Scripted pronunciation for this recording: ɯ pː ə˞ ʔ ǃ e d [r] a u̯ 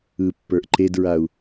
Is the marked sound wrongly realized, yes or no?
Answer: yes